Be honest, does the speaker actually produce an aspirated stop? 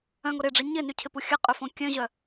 yes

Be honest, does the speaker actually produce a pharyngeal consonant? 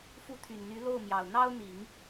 no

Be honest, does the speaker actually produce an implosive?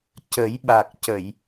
yes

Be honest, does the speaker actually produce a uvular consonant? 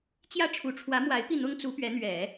no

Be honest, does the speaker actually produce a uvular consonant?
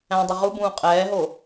yes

